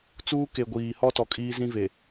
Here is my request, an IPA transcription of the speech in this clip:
t͡suː˦ke˨ ɡʷiː˨ hɔ˦tɔ˨ kʼiː˦zĩ˦ve˨

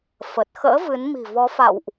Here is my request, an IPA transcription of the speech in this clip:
fə˨˩t̚xə̰ː˧˥vɨ˨˦n mi̤˨˩vɔ˨˦fa̰˧˨wʔ

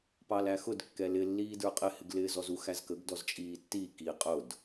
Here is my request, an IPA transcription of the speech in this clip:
pɑlæxʊd kːɛlɪ lːiːdə˞qʼɪ hɪɡlɪːzɔzu xæzkəɡ dɔzt͡ʃʼiːtːi ki qʼʊd

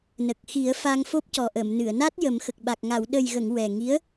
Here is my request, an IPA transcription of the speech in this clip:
nə˨˩k̚xi˨˩˦ə̯ fa˧ŋfo˦˥p̚cɔ˨˩ ʔə˨˩˨m nɨ˨˩˨ə̯na˦˥t̚ jə˨˩˦mxə˨˩k̚ɓa˨˩k̚ ŋa˨˩˨wɗə˨˩jɣə˨˩˨ŋ wɛ˨˩ŋi˧˥ə̯

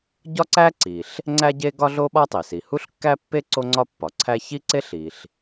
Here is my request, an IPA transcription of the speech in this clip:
ɟɒ˥ǀæ˥ ǀi˩ɬ | ŋ͡ǀæ˥ɟe˥ ɡɒ˥ɮo˥ɓɒ˥tˤi˩ si˩hu˥ɬkːæ˥pːe˥ ǀo˥ŋ͡ǀɒ˥pːɒ˩ǀʰæ˥ çi˥ǀe˥ɬ i˩ɬ

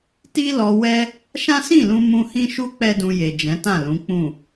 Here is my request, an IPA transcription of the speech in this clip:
ti˦lɔ˧wɛ˦ | ʃã˦sĩ˦˨lũ˧ mũ˧hĩ˦ʃu˦ k͡pɛ˦dũ˧je˨ d͡ʒɛ̃˨˦tã˦˨lũ˨˦k͡pũ˦˨

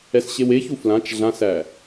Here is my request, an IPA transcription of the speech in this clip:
ɛsɕeweçu flãt͡ʃ ɮãsæ

